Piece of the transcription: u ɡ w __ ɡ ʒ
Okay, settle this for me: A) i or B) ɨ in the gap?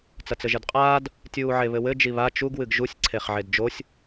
B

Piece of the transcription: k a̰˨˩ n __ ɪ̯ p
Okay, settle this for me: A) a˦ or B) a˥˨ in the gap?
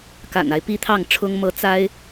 A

